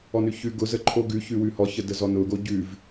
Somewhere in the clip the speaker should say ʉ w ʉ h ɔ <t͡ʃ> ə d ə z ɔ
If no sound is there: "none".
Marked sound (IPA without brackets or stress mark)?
ç